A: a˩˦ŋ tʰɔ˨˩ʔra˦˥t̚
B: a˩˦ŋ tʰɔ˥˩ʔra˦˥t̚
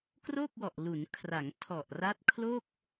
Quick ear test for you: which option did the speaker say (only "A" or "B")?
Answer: A